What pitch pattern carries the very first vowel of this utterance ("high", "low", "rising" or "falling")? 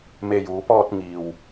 low